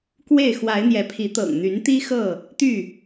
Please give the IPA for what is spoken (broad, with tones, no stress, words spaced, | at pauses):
kwe˥˨ɪ̯ xwa˨˦ɪ̯n̪jɛ˨˦pʰi˨˦ t̪ɤ̰˨˩ŋn̪y˨˦nt̪i˦xɤ˥˨ | t̪y˥˨